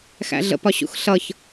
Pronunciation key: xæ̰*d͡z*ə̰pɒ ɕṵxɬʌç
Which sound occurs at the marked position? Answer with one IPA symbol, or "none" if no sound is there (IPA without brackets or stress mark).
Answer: ɮ